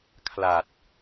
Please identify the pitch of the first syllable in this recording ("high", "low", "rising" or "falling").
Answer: low